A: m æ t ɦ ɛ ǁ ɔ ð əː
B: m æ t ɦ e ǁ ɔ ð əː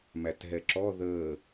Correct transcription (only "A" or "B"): A